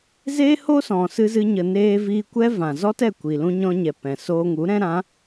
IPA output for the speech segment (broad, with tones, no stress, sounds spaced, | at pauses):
z eː˦ h o˦ s ɔ̃˨ s ɨ˦ z ɨ˦ ɲ ə˧ n eː˧ v iː˧ kʷ ɛ˦ v ã˨ z ɔ˦ t ɛ˦˨ kʷ i˨ l ũ˧ ɲ ɔ̃˧ ɲ ɛ˨ p ɛ̃˨ s oː˧ ŋ u˨˦ ɾ ɛ̃˦ ɾ ã˨˦